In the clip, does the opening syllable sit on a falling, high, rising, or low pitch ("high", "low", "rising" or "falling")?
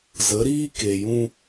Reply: rising